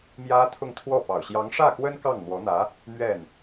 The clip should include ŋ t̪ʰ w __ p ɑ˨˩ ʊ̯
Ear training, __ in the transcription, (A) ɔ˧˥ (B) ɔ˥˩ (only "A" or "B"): B